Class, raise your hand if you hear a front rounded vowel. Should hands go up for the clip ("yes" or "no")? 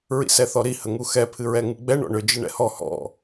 yes